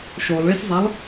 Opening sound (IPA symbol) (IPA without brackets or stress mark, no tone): ʃ